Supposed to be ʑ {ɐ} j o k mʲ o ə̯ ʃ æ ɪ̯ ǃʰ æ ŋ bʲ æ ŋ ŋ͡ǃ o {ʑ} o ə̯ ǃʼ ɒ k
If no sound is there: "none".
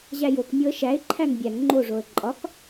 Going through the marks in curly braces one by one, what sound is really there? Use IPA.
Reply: æ, ʐ

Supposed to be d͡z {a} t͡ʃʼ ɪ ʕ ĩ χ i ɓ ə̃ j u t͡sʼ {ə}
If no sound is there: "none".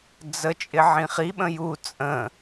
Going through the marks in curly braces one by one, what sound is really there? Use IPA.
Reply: ə, ə̃

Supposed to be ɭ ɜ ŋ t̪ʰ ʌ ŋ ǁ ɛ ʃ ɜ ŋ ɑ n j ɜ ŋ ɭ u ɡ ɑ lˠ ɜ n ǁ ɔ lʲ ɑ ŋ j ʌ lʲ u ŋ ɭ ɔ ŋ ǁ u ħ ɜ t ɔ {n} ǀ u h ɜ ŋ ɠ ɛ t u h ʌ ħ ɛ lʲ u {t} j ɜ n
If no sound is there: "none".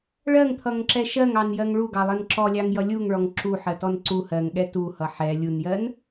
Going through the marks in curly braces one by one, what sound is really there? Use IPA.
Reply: n, n

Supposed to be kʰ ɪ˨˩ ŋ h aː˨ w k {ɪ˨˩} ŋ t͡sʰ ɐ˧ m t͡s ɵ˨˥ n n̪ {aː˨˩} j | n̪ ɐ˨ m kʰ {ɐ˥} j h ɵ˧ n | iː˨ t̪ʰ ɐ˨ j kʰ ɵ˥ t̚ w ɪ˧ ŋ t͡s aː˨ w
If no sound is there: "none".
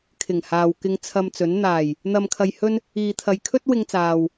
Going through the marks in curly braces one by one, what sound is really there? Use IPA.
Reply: ɪ˧, aː˨˩, ɐ˨

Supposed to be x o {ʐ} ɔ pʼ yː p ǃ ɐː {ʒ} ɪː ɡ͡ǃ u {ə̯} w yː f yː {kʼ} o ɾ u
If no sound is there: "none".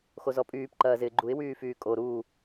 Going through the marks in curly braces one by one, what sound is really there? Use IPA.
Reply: z, z, ɪ̯, kʼ

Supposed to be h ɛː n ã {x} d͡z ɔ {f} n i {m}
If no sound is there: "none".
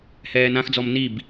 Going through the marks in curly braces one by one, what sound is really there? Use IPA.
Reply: x, m, b

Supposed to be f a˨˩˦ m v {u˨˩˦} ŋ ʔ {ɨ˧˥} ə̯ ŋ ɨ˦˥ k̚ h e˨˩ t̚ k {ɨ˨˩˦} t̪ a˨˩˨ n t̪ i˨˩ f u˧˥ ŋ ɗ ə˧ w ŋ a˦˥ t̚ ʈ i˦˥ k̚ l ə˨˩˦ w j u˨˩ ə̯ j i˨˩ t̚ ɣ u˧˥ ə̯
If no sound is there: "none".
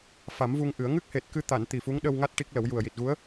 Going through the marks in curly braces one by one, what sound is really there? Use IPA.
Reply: u˧, ɨ˨˩˦, ɨ˧

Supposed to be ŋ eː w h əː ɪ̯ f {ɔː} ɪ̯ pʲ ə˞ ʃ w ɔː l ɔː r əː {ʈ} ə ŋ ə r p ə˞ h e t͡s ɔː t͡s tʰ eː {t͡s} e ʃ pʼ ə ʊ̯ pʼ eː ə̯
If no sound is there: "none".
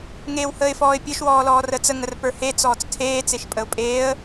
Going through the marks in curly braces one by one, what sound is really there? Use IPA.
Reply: ɔː, t͡s, t͡s

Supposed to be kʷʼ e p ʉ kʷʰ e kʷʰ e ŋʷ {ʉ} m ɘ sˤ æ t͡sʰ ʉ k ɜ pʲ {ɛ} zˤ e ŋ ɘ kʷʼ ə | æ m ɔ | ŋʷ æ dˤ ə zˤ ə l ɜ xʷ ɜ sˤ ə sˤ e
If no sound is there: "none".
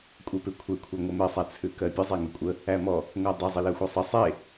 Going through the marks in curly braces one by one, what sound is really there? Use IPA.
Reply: ɘ, ə

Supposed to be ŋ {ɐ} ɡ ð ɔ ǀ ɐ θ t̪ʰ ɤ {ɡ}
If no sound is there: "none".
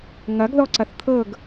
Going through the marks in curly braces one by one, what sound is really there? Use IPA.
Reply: ɐ, ɡ

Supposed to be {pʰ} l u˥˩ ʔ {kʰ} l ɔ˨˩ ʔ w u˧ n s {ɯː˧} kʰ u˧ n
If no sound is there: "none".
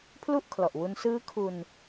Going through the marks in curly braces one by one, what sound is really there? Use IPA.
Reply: pʰ, kʰ, ɯː˦˥

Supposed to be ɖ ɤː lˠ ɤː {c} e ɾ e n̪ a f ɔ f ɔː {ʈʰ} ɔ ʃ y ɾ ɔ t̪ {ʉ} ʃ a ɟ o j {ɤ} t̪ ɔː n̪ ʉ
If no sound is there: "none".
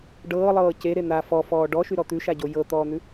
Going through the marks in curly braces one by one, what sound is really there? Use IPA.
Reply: c, ɖ, ʉ, ɤ

